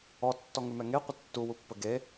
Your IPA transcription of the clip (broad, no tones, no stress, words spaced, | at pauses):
ɔtːɔŋʉmɛ ŋeqʷə tːuwupːə ɡe